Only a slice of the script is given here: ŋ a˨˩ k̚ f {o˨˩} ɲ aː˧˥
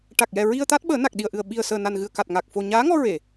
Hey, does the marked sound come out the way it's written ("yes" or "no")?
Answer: yes